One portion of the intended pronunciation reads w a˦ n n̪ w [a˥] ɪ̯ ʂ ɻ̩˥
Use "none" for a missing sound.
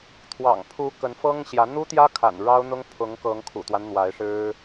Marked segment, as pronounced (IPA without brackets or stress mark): a˧˥